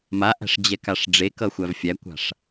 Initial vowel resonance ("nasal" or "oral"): oral